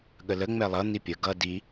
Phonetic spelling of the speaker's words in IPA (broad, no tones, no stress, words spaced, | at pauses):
ɠələ ŋ͡mɛlˠʌ n̪ipʲə ɡʌ di